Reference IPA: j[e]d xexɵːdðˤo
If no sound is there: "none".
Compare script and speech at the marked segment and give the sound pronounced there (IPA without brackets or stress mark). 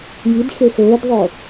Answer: i